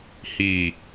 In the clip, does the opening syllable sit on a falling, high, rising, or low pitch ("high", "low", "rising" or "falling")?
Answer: low